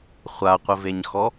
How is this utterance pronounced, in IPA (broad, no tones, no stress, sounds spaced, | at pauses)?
χʷ a qʷ ɘ v e ɲ x ɔ